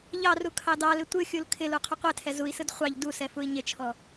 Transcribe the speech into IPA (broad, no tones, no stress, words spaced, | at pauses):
ʎɑru kʰɑdɑlɪ tʷɯxʲul kʰɪlu qʰʊqʷɛtʰɛ zui̯sɯd χʷɑʎ dusɛ fui̯ɲɪt͡ʃʰɔ